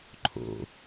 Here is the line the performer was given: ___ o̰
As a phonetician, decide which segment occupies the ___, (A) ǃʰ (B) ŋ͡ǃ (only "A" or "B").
A